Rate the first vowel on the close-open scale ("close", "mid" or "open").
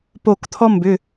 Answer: mid